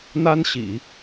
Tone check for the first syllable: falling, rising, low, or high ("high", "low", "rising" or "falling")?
high